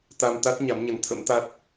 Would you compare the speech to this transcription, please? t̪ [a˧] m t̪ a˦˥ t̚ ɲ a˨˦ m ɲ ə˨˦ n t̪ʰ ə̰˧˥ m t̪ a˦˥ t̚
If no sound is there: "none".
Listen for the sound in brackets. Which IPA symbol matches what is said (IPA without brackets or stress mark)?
a˧